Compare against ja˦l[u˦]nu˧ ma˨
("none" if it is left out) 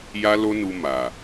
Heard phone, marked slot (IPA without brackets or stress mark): o˦